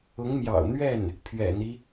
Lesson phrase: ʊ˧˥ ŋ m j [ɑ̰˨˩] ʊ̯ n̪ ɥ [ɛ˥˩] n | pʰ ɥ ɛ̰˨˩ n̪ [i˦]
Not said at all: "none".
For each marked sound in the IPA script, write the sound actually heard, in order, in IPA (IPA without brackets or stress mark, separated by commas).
ɑ̰˨˩, ɛ˥˩, i˦